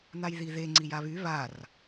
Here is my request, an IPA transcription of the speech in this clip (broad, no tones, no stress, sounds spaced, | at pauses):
n̪ a j ð i ð e ŋ͡ǀ i j a β y β a r